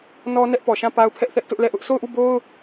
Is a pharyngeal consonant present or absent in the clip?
absent